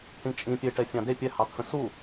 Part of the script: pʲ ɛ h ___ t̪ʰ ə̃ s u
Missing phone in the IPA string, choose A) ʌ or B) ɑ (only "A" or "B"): B